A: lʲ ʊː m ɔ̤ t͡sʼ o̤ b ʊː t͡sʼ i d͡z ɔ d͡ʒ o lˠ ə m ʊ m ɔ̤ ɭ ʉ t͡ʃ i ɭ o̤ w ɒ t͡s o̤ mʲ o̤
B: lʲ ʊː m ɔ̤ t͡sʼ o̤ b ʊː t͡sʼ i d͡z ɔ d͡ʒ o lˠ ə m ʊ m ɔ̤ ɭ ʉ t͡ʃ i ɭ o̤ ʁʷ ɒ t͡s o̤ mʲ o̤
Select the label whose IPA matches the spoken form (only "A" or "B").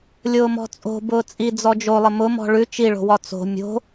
A